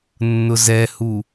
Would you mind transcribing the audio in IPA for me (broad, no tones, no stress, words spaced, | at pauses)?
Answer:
nːʊzɛhu